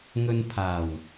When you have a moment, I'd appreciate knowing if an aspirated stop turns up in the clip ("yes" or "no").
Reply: yes